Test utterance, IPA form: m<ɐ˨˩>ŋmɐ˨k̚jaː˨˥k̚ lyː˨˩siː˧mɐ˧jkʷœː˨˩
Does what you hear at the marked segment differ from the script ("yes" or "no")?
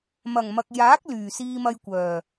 no